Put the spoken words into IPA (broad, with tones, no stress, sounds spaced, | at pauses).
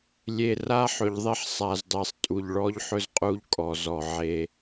lʲ e˨ r a˦ ħ ɵ˨ ʎ ðˤ e˦ ħ sˤ a˨ z dˤ e˨ sˤ tʼ u˨ ʎ ɭ ɔ˦ ʎ ħ ɵ˦ z qʼ u˦ ʎ kʼ ɔ˨ z ɔ˨ ʕ e˦